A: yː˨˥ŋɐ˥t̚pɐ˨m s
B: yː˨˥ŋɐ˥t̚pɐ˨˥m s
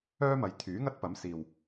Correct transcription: B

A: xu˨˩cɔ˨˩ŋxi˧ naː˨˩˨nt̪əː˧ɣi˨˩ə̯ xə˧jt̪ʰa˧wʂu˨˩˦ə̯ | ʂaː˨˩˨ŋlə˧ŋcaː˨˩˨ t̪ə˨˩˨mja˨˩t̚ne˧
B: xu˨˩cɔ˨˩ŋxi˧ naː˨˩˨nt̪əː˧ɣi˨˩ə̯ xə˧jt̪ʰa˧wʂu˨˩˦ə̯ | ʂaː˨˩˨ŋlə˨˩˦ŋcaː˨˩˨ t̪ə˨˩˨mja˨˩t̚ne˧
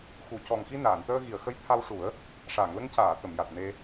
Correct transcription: A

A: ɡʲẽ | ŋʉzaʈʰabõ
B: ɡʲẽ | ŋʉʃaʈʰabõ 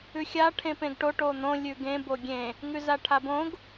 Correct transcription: A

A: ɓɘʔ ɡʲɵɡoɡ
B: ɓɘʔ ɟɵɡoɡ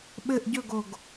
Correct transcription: B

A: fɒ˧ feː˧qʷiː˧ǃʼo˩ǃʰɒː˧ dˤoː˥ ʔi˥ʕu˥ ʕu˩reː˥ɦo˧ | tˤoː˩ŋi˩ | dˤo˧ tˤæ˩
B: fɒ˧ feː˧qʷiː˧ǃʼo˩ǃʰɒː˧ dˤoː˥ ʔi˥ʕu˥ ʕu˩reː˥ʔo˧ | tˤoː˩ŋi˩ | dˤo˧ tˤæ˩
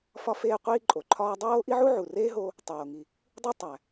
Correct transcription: A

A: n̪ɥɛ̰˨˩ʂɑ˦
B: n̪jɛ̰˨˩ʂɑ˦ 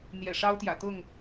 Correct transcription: B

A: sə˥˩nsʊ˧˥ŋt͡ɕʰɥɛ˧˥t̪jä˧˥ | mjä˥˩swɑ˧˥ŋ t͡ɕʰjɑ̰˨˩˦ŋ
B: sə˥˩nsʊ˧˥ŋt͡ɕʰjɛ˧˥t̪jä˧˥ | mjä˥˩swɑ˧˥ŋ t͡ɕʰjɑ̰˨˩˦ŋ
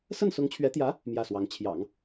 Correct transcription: A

